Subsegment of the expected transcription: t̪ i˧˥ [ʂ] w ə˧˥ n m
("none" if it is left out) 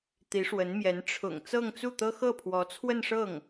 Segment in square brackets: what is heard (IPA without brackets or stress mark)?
ʂ